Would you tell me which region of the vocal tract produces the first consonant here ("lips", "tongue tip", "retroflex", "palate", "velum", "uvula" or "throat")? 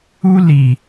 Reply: tongue tip